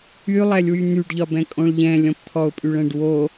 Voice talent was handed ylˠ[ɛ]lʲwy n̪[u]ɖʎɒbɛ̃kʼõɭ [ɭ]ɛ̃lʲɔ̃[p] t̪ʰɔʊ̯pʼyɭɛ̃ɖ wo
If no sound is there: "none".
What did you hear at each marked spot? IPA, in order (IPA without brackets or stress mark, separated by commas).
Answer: ɛ, y, ʎ, p